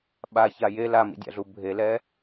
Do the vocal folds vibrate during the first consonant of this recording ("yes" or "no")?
yes